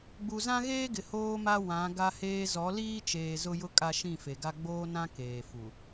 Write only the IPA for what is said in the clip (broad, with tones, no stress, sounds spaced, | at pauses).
ɡ͡b u˨ z ã˦ ɣ eː˦ ɡ ɪ˨ h oː˦ m a˦ w ã˨˦ ɡ a˦ h eː˦ z ɔ˨˦ l iː˦ t͡ʃ eː˨ z ʊ˦ j ʊ˦ kʼ a˦ ʃ ĩ˦˨ f e˨ ɡ a˦ ɡ͡b oː˦ n ã˦ k eː˨ f u˨